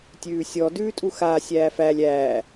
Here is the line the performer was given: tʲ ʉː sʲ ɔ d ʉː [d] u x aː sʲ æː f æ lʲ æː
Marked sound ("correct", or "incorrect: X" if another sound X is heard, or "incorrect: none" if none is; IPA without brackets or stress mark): incorrect: tʼ